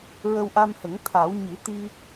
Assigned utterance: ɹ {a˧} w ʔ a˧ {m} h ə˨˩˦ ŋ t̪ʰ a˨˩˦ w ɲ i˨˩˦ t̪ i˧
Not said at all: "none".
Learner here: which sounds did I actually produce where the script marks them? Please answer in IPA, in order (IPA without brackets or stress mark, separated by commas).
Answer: ə˧, m